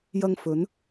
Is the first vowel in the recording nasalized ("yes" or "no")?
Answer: no